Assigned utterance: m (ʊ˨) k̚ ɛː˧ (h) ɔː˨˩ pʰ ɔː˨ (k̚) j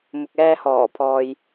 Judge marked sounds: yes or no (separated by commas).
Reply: yes, yes, no